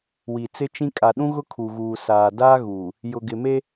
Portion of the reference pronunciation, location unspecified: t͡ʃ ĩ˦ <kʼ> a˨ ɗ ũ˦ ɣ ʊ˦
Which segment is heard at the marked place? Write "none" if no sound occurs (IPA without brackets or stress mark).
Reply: kʼ